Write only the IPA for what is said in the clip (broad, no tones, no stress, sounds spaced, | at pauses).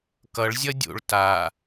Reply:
k ʌ ɭ zʲ ʌ dʲ o̰ ɭ t a